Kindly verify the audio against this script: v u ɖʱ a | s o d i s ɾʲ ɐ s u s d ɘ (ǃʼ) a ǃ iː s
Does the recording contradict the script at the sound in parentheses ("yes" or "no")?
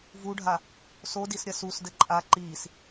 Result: no